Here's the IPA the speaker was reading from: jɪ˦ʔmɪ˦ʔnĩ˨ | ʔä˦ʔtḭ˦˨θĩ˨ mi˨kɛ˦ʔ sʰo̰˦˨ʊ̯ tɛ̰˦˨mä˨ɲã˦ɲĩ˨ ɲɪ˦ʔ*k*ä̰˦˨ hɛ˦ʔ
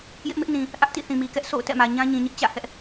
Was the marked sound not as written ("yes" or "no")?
yes